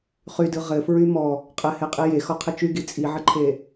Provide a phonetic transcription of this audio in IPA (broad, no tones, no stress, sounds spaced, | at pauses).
χ y d ɯ ʁ ɘ f ɹ y m ɔ | qʼ ɘ h e qʼ i j e x ɔ qʰ ɘ t͡ʃ y ɡ i t͡sʼ i ʕ ɘ ǃʰ e